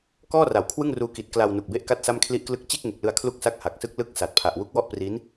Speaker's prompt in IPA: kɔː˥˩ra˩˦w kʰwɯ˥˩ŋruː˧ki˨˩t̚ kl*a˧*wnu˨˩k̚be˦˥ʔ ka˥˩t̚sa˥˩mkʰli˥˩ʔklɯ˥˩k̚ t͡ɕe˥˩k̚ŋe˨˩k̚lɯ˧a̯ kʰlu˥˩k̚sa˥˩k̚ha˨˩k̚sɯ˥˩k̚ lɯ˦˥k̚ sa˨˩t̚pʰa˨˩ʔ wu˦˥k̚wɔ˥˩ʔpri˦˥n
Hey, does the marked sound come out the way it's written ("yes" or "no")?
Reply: yes